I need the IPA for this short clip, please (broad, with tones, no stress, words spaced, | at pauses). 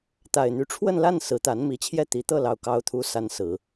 t̪a˨˩ɪ̯n̪y˧˥ ʈ͡ʂʰwə˥˧nla˥˩n sɹ̩˧˥t̪a˧˥n mi˨˩t͡ɕʰjɛ˥˩ t̪i˧˥ t̪ɤ˥˩lɑ˨˩ʊ̯ kɑ˧˥ʊ̯t̪ʰu˧˥ sa˧˥n sɹ̩˨˩˦